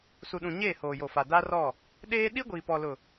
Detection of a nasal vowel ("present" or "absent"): present